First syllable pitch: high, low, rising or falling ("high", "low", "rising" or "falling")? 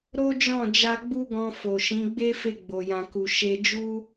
high